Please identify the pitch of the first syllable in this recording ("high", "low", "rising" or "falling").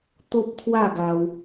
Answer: high